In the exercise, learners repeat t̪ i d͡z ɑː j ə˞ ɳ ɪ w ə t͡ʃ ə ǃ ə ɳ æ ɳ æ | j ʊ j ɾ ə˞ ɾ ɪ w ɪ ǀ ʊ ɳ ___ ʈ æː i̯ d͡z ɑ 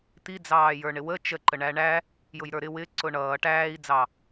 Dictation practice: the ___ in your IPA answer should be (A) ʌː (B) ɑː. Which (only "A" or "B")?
A